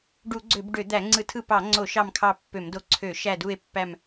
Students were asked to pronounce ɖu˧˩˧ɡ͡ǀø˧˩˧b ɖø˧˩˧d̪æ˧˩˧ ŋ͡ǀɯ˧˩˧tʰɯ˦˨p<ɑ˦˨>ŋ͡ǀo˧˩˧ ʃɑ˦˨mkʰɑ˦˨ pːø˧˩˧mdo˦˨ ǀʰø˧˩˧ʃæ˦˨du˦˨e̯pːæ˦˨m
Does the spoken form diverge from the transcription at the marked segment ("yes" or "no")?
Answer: yes